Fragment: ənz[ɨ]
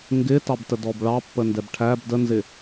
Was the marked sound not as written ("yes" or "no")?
yes